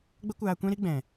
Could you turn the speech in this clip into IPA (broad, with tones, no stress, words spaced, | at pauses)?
ɡ͡bə˦kʷaː˧kʷɛ̃˦ ɾi˦ ɡ͡bɛ̃˨